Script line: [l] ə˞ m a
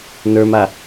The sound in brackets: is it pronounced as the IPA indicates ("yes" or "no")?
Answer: no